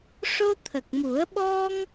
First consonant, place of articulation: retroflex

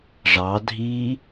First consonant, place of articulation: retroflex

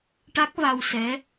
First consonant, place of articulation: retroflex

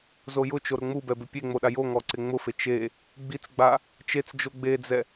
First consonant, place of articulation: alveolar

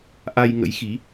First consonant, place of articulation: glottal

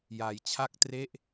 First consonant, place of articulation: palatal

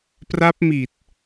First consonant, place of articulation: labial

